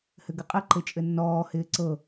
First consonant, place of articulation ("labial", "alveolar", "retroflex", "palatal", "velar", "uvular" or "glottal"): glottal